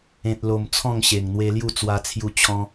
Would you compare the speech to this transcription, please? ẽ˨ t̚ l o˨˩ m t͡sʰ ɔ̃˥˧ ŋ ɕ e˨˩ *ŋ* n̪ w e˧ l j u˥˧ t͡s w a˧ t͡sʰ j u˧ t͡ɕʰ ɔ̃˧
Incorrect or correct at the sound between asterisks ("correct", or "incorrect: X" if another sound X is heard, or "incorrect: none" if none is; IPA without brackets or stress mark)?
correct